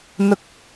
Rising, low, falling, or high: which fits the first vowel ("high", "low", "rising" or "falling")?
low